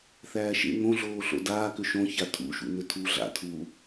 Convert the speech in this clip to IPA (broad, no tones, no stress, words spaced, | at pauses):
θæːʃḛ ŋõ ɮoːɬo̰daː kʏʃõ çatʰṵʃṵ nʏtʰu ɮa̰ tʰu